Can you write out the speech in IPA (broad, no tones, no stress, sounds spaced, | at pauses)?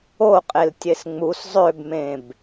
o qʼ e l tʲ e s ŋ͡m u s zˤ ø b m ẽ b